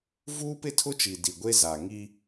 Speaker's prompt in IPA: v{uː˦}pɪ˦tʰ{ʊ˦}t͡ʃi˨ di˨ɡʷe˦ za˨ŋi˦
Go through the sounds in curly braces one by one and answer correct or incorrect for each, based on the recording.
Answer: correct, correct

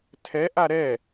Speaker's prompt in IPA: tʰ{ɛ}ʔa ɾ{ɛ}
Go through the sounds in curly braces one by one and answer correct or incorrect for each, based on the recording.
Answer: correct, correct

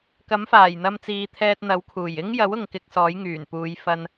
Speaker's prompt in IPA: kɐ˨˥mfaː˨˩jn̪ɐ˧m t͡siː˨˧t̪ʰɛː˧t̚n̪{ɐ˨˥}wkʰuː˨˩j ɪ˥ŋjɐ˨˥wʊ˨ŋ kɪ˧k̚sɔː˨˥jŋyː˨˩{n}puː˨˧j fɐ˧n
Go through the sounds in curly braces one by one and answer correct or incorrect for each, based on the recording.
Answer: correct, correct

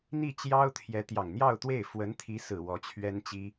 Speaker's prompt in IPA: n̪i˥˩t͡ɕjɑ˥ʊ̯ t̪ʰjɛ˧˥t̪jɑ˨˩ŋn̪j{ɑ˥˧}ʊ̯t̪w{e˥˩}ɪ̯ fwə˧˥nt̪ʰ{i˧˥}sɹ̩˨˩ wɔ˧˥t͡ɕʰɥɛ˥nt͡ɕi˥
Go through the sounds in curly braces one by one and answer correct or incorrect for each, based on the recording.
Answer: correct, correct, correct

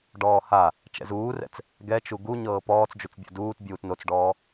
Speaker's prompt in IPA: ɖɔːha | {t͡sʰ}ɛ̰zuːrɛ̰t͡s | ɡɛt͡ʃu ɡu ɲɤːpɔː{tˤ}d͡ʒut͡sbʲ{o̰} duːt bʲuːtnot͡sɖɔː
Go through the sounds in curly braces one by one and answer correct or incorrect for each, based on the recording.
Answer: incorrect, incorrect, correct

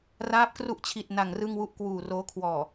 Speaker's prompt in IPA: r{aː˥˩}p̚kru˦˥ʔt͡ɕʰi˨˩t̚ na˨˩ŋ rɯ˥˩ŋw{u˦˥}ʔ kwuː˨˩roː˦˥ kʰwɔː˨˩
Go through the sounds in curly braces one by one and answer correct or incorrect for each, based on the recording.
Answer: incorrect, incorrect

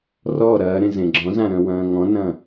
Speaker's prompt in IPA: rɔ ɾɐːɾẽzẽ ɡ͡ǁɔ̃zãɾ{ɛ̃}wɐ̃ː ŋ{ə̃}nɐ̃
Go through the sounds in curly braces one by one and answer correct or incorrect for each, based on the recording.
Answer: incorrect, incorrect

